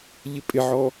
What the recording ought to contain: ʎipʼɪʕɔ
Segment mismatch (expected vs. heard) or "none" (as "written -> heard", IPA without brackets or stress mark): i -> ɪ